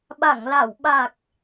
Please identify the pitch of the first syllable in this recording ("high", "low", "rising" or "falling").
low